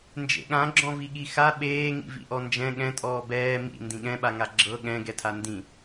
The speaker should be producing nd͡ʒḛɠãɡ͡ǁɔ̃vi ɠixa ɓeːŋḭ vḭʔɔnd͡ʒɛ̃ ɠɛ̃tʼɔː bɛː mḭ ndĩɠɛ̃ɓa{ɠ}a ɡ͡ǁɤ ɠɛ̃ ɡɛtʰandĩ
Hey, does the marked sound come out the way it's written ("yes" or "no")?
no